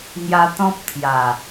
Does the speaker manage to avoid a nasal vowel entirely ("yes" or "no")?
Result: no